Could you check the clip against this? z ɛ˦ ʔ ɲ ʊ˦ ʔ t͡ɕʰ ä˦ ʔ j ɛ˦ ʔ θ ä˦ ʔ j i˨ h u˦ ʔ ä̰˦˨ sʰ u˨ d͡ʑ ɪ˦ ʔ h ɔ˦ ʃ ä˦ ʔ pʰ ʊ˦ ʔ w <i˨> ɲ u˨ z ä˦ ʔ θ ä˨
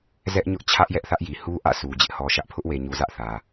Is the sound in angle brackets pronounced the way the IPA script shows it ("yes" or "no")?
no